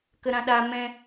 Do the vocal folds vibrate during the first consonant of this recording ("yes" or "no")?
no